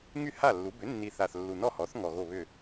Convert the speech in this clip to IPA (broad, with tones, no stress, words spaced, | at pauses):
ŋy˥˩ha˥˩lːu˩˥ bʏ˩˥nːi˨˩θa˨˩θ lːu˨˩nɔ˥˩ hɔ˩˥θ ŋɔ˨˩ ɣo˥˩βʏ˥˩